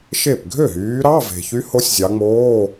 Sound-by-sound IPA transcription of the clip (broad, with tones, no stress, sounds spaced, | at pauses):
ʃ e˥˩ p ɡʱ ø˥˩ ɦ yː˨˦ ɾ ɑ˧˥˧ v e̤˨ ç y˦˥ h o˦˥ sʲ zʲ ɑ˨˦ ŋ͡m oː˧˥˧